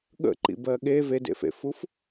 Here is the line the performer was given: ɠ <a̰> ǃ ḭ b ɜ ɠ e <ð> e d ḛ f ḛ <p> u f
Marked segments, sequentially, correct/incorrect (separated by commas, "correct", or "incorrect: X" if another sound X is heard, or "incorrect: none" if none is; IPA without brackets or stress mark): incorrect: ə̰, incorrect: v, incorrect: f